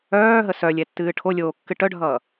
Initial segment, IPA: œː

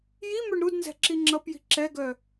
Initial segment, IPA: j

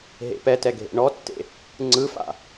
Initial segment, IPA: ɦ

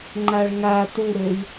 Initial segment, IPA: ŋ͡ǃ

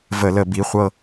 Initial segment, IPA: v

